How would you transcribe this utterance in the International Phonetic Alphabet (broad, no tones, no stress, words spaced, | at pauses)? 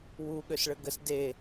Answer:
wu ɠøsɭəɡəs de